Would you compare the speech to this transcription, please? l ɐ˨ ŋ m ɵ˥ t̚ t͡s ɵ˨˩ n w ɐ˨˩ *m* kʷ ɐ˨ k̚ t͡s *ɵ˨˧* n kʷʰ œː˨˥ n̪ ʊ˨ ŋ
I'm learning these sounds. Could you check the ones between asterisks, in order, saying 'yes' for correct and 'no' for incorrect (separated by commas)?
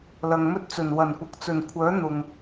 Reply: no, no